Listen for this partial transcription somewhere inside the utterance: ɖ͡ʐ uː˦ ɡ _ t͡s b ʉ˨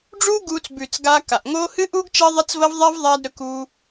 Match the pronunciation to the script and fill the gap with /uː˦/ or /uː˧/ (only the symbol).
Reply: uː˧